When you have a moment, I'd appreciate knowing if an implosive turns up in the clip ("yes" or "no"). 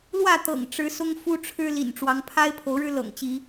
no